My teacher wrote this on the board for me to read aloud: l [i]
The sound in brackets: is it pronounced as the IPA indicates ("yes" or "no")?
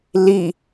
yes